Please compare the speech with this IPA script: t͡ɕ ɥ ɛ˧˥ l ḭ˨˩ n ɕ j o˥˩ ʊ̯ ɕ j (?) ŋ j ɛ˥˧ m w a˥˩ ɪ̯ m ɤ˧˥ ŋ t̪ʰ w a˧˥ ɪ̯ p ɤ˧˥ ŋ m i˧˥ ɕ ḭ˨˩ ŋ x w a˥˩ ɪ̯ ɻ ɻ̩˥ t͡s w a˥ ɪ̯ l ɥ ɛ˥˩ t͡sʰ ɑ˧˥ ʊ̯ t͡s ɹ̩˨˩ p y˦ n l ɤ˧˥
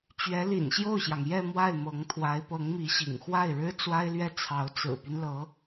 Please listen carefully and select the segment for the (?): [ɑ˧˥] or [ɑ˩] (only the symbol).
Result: ɑ˩